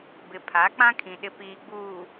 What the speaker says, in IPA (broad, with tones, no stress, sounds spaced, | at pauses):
b ɪ˨ pʰ a˨˦ k͡p ã˦ kʰ ĩ˨ ɗ ɪ˨ p iː˨ ɡ͡b uː˨